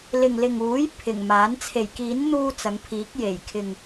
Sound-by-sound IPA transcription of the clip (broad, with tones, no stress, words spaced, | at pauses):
lɪ˨ŋlɪ˨ŋuː˨˥j pʰɪ˨˩ŋ maː˨˥n t͡sʰe˨˩jkiː˨˥n n̪uː˥t͡sɐ˨˧ŋpʰiː˨˥k̚ je˨˩jkʰɪ˨ŋ